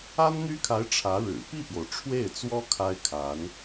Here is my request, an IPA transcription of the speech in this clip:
a˥ n n̪ y˥ kʰ a˧˥ ɪ̯ ʈ͡ʂʰ ä˧˥ ɻ ɻ̩˨˩ p i˥˩ p j o˩ ʊ̯ ʈ͡ʂʰ w e˥˩ ɪ̯ t͡s w ɔ˥ kʰ a˥ ɪ̯ kʰ a˧˥ n

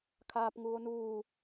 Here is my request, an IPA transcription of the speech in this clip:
kʰ aː p ŋ uː o̯ n uː

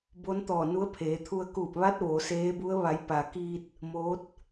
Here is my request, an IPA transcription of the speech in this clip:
b o˧˥ n t̪ ɔː˧˩ n u˧˥ ə̯ pʰ eː˩˧ t̪ʰ u˧ ə̯ k uː˧˩ p̚ ʋ a˧˥ t̚ ʋ o˩˧ s eː˧˥ b u˧˥ ə̯ ʋ a˩˧ j p a˩ k iː˧ t̚ | m o˧˥ t̚

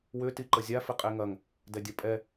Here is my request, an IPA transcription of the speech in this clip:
w ʏ t i ǃ ə zʲ a f ɪ qʼ e ŋ ɐ ŋ | d ɛ dʲ ɐ pʼ ɛ

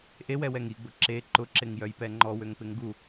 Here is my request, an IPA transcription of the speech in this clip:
ʔ e w ɛ w ɛ ŋ i ɡ͡b ʊ ǁ e ǃ ʊ ǁ ɪ ŋ j œ j p ɛ ŋ͡ǃ ɔ w ø ŋ p ɪ ŋ ɡ u

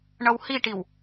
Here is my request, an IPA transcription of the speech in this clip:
ɳ ʌ w h i ʈ i w

